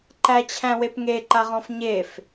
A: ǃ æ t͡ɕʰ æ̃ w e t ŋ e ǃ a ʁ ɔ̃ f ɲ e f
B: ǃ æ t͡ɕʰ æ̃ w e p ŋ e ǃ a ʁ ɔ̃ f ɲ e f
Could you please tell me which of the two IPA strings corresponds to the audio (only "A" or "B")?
B